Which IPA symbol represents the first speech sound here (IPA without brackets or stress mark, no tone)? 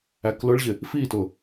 æ